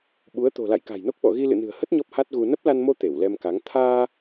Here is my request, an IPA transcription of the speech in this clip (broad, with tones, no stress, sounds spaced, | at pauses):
ɓ u˨˦ ə̯ t̪ o̤˨˩ l a̰˧˨ j k a̤˨˩ j n o˦˥ k̚ ɓ ɔ̰˧˨ ɣ i˧ l ɨ̰˧˨ n ɨ̤˨˩ ə̯ h ə˦˥ t̚ ɲ ɔ˦˥ p̚ h a˦˥ t̚ ɣ u˧ n ə˦˥ p̚ l a˧ n m o˧ t̪ e˧˩ w l ɛ˧ m k a˨˦ ŋ t̪ʰ aː˧